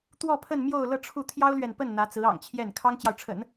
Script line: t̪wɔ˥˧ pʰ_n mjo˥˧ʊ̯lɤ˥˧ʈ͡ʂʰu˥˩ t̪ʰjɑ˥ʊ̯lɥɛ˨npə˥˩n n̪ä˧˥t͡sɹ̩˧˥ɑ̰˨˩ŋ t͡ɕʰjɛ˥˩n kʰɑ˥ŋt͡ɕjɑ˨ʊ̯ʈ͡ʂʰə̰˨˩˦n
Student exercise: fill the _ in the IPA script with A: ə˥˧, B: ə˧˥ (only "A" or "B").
A